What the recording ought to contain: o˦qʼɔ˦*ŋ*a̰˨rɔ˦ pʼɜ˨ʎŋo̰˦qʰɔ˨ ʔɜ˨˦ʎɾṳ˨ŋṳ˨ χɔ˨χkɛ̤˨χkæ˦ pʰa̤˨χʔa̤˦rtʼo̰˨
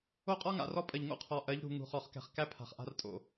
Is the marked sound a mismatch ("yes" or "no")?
no